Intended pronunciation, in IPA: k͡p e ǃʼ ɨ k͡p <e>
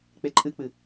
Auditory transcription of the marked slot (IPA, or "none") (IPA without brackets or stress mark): ɨ